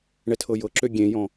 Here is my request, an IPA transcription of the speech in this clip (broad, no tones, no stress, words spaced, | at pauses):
ɳɛtʰɤjɤǁø ɡʲẽjɔ̃